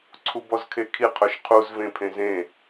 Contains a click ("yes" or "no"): yes